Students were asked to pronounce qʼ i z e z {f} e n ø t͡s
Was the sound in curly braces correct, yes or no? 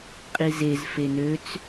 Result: yes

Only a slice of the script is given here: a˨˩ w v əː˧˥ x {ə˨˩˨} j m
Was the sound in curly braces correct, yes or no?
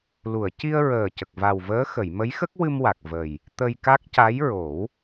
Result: yes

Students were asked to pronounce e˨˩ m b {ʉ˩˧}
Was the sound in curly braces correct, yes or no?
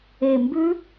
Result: no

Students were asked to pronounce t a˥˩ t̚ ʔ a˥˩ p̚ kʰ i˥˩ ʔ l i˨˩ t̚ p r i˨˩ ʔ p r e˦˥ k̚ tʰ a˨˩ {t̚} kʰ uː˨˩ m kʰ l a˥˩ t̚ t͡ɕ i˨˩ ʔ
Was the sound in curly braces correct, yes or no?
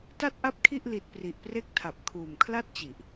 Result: no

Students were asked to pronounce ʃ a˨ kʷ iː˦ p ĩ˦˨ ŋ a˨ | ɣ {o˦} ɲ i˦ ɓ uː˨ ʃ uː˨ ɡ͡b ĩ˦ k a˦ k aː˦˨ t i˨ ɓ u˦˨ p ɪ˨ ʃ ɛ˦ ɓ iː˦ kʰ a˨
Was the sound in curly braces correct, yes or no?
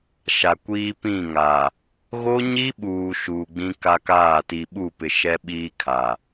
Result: yes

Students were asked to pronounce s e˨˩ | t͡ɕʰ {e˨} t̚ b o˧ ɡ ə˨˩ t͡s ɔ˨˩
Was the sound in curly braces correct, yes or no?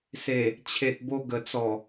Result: yes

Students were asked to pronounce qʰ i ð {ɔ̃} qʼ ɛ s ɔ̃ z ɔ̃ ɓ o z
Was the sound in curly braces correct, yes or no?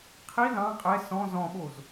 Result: no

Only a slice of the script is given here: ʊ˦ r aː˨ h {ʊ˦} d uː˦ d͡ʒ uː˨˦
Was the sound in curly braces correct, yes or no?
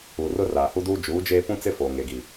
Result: no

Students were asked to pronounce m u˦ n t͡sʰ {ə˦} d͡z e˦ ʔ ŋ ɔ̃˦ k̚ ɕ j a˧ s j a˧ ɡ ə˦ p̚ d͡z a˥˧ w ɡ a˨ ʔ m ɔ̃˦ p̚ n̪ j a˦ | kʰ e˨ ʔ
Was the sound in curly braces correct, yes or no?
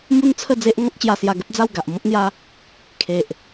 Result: no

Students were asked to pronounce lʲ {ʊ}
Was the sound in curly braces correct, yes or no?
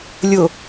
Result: yes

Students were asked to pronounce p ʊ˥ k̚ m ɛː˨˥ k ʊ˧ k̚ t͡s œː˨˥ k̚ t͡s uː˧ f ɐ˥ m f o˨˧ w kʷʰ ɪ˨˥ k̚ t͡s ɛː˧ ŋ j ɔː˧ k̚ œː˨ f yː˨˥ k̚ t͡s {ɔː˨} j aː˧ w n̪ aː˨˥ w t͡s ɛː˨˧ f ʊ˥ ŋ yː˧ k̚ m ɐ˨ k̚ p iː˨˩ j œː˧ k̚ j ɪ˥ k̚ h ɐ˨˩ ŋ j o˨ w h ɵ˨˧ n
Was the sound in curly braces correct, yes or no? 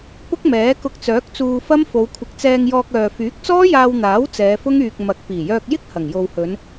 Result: no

